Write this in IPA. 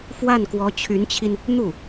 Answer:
f w a˥˩ n k w ɔ˧˥ t͡ɕʰ y˧˥ n t͡ɕʰ i˧ n | n̪ u˥˩

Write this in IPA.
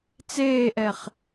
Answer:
t͡s eː ʔ ɛ χ

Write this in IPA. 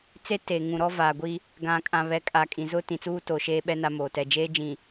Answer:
t͡s e˦ t e˨ ŋ ũ˨ ɾ ɔ˦ v a˨ ɡʷ i˦ | ɡ ã˨ kʼ ã˨ β ɛ˨˦ kʼ a˨ kʼ ĩ˨ z ʊ˦ t ĩ˨ t͡s uː˦ t o˨ ʃ eː˦ ɓ ɛ˦ n a˦ m oː˨ t ɛ˦˨ d͡ʒ eː˦ d͡ʒ ĩ˨

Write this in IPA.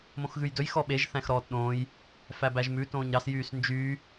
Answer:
m õ x ɣ ʉ j d ɵ j x ɔ ɓ e ʒ θ æ̃ x ɾ ɔː t ɗ õː j | f æ b æ ʒ m ʉ t õː ɲ ɾ ɑ s j yː s n d͡ʒ yː

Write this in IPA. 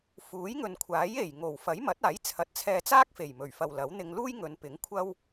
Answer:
f uː˨˥ j ŋ ɵ˨ n kʷʰ aː˨˥ j e˨˩ j ŋ o˨˩ w f ɐ˨˥ j m ɐ˨˥ t̚ aː˨˥ j t͡sʰ ɐ˨ t̚ t͡sʰ ɛː˧ t͡s aː˥ k̚ f e˨˩ j m ɵ˨˩ ɥ f ɐ˨ w l ɐ˨˥ w n̪ ɪ˧ ŋ l uː˥ j ŋ ɵ˨˧ n p ɪ˨˥ ŋ kʷʰ ɐ˥ w

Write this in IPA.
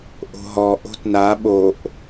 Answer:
ʔ o̤ ɦ ɔ ʔ o̤ t n a ɓ o ʔ

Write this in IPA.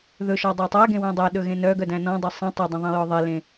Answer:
ð ɵ ʃ ɔ dˤ o tˤ æ ɡ ẽ w œ̃ dˤ æ ɗ ɵ ɣ ẽ n œ ɡ œ d æ̃ n ɔ̃ dˤ ɵ sˤ ĩ tˤ ɵ dˤ ĩ ðˤ ĩ j ɔ ðˤ e l ẽ

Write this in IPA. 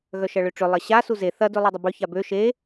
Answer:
ɣ œ ʃ ɐ ɭ ø ʈ͡ʂ ʏ lˠ ɐ ɕ a s u z e θ ɐ d ø lˠ u dˤ ɐ b ø ç a b ø ʃ e

